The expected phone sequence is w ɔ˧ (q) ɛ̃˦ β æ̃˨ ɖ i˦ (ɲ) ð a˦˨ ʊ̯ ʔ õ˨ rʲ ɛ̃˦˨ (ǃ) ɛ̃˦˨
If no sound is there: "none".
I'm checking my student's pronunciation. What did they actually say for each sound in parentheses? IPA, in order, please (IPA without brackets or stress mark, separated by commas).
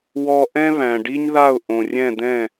ʔ, ɲ, d̪